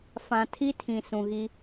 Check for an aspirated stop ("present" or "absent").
present